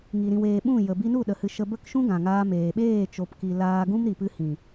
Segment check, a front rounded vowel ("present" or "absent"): absent